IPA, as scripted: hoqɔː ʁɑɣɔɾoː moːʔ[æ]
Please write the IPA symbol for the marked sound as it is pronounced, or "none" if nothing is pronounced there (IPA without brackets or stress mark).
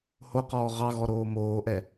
ɛ